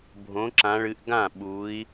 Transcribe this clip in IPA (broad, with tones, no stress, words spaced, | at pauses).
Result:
bʱõ˨˦ ǁã˨˦ɭɨ˨˦ʔɡã˥˩ ɓu˨˦i̯